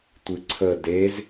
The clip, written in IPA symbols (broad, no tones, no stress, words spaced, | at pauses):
tʷɨǀʰə dez